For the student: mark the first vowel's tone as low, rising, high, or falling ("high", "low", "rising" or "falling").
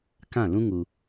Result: falling